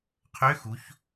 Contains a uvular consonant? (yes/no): yes